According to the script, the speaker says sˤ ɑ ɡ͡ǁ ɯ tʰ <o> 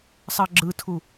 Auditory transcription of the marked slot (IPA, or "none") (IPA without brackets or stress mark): u